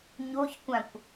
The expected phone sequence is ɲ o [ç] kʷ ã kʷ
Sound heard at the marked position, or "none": ç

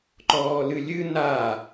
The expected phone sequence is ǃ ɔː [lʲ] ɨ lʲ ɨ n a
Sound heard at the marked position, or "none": l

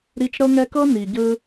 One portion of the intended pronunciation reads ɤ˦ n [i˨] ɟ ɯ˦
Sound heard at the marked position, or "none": i˨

